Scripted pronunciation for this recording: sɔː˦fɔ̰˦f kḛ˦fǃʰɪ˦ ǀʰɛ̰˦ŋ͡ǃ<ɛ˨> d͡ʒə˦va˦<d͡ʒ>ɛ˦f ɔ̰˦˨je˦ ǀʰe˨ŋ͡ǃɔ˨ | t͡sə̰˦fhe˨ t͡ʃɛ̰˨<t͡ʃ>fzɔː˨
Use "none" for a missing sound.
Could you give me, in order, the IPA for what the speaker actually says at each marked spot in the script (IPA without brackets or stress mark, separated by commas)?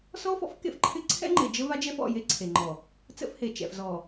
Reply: e˨, d͡ʒ, none